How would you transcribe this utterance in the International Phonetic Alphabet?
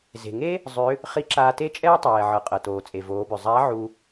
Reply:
z e̤˩ ŋ e˥ | zˤ ʏ˧˥ | χ i˧˥ ǁ aː˧ t e˥ t͡ʃʼ ɛː˥ tˤ ɛː˩ ʕ ɤ˩˧ qʼ ɤ˩ t oː˩ t͡sʼ e˩ v oː˩˧ b ʏ˩ zˤ a˧˥ ʕ u˧

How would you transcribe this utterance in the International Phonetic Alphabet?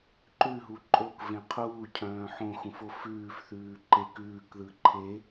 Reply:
ǃ ʉ ɦ u ǃʼ o k v ẽ qʰ uː cʰ œ̃ː ħ õ x ũ f o f ʉː f θ ʉː ǃ e k ʉː k ð ɯ ǃʰ e

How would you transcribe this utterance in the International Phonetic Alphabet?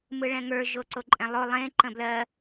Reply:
m ɯ ɭ ɛ̃ ŋ ə˞ ʒ o ǀ o ǃʼ ɛ̃ lˠ o lˠ ẽ ǃ ə̃ b l ɜ

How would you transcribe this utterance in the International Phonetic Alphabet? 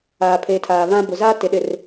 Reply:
aː˨ pʰ eː˨ tʰ aː˨ β ã˦ b ʊ˨ z aː˦ t ɪ˨ ɗ ɪ˨ r

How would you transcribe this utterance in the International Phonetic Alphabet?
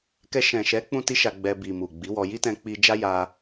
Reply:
k ɛ˧ ʃ ɛ̃˨ ʃ ɛ˨˦ k͡p ũ˧ t i˧ ʃ a˧ ɡ͡b ɛ˧ b i˨ m u˨ ɡ͡b i˨˦ w ɔ˧ j i˦ t ɛ̃˧ k͡p i˧ d͡ʒ a˦ j a˧

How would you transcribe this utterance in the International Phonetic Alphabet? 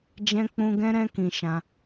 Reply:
d͡ʒ ɛ̃˦ k͡p ũ˦ ɡ ɛ̃˦ ɾ ɛ̃˦ k ĩ˧ ʃ ã˧

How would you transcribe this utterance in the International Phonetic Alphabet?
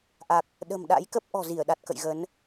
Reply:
ʔ a˨˩ k̚ | ɗ ə̤˨˩ m ɗ a̰˧˥ j k ə˦˥ p̚ ʔ ɔ̤˨˩ z i˧˩ ə̯ ɗ a˨˩ t̚ k ə̰˧˨ j ɣ ə˨˦ n

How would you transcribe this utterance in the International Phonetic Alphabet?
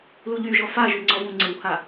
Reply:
l u ʎ y ʒ ɔ f a ʒ y ŋ͡ǀ ɔ v ũ ŋ͡ǀ ɪ w h a

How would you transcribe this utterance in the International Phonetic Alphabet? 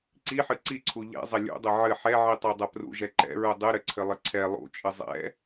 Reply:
ǀ i ħ ɨ ǀ i ǀʰ u ʎ ɛ̰ zˤ ɐ lʲ ṵ dˤ ɘ ʕ ɘ ħ ɛ ʕ i tˤ i dˤ ɐ p r ṵ ʒ ɛ ǃ ɛ̰ ɹ u dˤ ɨ ɾ ɘ ǀʰ ɘ lˠ ɘ ǀʰ ɛ lˠ ṵ t͡ʃʼ ɨ zˤ ɛ̰

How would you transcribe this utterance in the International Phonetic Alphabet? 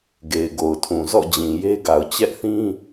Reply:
ɡ e˨ ɪ̯ ɡ o˨ ʊ̯ tʰ ũ˨ z ɔ̰˦˨ d͡ʑ ĩ˨ j e˦ ɡ a˨ ʊ̯ t͡ɕ ɛ˦ ʔ θ ĩ˦

